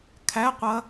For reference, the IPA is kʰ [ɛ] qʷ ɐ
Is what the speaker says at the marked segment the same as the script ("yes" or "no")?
no